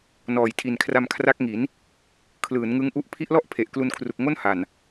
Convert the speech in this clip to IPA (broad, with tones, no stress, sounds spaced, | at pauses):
n ɔː˨˩ j tʰ i˨˩ n kʰ r a˧ m kʰ r a˦˥ k̚ ŋ i˩˦ n | kʰ l ɯː˩˦ n ŋ ɯ˦˥ ŋ ʔ u˦˥ ʔ pʰ i˦˥ ʔ l ɔ˥˩ ʔ pʰ e˨˩ ʔ k l u˧ n kʰ r u˨˩ k̚ ŋ o˥˩ n h a˨˩ n